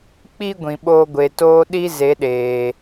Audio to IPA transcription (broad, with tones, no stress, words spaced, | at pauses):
k͡pi˦ ɡʷĩ˨ɓoː˧ɡʷe˨ toː˧ ɗi˧ ze˨˦ɗeː˨